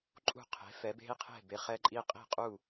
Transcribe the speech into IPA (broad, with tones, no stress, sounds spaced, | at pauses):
ǃʼ ṳ˥˩ qʰ e̤˩˥ f ɛ˩˥ b e̤˥ i̯ qʰ e̤˥˩ b e˩ χ ɛ˧ ǃʼ i˧ qʼ i̤˥˩ qʼ u˥˩